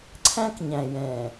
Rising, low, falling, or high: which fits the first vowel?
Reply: high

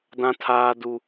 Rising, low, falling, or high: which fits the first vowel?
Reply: high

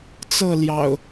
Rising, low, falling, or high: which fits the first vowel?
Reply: falling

